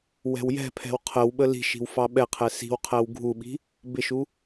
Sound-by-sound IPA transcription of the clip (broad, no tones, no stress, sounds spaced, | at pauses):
w ɛ̤ w j ɛ̤ pʰ ɛ̤ w qʰ ə w ɓ ə l i̤ ʃ i̤ w f ɑ ɓ ɛ qʰ ɛ s i̤ w qʰ æ w ɡʱ u ɓ i̤ | b ɪ ʃ u